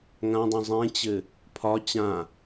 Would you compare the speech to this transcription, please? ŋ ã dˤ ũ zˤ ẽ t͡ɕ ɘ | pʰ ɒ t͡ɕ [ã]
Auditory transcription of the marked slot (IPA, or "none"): ã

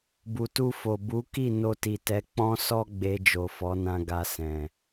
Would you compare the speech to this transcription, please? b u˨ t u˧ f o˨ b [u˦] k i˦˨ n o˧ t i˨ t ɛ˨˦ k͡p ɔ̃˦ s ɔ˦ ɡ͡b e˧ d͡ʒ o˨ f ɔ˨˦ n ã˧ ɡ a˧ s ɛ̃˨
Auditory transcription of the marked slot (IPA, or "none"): u˨˦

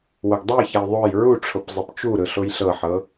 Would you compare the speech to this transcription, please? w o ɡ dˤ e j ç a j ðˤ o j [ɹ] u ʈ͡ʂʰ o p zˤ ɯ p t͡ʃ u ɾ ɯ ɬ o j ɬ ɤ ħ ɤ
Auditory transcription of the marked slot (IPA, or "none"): ɹ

